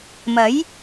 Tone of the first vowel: rising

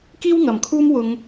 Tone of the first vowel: high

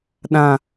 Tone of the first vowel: low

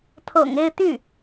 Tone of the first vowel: low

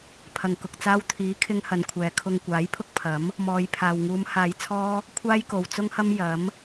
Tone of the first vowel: low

